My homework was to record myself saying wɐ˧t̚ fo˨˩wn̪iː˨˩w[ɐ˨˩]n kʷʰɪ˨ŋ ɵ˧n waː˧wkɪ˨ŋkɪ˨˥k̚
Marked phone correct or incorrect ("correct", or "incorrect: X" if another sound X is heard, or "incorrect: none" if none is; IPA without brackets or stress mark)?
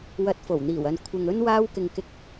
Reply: incorrect: ɐ˨